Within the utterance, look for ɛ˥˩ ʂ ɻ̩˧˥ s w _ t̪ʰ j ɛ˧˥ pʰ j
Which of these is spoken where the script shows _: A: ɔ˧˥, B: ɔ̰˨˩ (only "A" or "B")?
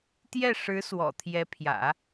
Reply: B